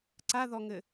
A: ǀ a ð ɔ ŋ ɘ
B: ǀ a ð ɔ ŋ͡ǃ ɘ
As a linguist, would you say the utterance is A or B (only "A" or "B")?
A